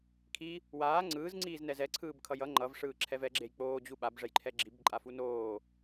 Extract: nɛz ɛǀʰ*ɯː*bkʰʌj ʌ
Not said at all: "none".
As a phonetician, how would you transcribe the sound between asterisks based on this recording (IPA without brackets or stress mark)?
ɯː